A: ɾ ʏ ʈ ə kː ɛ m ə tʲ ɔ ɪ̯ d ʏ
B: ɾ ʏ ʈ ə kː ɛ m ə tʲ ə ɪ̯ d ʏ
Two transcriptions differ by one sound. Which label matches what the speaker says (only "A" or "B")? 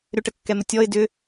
A